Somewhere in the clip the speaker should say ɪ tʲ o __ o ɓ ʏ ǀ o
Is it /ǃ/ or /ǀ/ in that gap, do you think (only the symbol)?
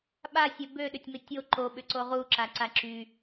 ǃ